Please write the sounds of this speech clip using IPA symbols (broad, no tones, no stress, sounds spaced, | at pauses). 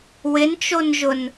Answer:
w ɪ n t͡ʃ o n ʒ ʊ n